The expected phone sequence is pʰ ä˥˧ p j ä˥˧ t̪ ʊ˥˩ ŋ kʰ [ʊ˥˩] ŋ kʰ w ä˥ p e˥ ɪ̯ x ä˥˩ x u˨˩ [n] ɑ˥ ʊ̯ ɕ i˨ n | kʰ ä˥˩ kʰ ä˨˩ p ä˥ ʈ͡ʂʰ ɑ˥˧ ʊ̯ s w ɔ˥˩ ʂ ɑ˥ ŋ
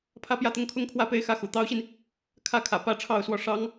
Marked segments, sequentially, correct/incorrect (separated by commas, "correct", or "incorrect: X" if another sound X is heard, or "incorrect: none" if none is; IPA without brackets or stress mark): incorrect: ʊ˥, incorrect: t̪